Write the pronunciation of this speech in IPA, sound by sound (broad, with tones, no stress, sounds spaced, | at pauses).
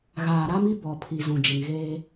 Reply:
ɣ aː˨ ɾ a˦ m i˦ b ɔ˨ pʰ i˨ z ũ˨ d͡ʒ ɪ˨ ŋ ɣ eː˦